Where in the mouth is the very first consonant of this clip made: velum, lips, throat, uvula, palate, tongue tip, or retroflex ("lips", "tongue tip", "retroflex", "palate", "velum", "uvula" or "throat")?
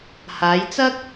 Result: throat